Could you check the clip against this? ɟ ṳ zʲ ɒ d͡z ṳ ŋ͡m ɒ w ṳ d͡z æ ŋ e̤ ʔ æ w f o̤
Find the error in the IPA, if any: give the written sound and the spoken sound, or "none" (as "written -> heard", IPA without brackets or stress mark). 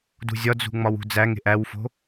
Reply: ɟ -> d